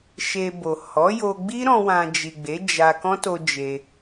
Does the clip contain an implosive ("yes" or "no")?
no